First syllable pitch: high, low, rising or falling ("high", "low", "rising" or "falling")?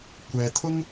low